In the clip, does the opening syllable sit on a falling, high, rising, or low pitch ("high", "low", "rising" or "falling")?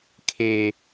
low